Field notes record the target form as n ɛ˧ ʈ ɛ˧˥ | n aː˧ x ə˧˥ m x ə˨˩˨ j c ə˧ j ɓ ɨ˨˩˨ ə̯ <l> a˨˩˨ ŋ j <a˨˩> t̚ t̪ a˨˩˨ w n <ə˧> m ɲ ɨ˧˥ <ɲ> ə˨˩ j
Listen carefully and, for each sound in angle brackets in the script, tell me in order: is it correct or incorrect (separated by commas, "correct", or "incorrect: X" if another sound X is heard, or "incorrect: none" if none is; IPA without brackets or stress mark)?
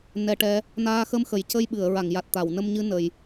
incorrect: ɹ, correct, correct, incorrect: n